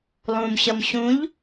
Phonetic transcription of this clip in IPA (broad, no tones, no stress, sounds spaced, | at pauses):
lˠ ũ m ɕ ʌ m ɕ ũ ʎ